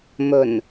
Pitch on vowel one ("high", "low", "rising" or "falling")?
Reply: low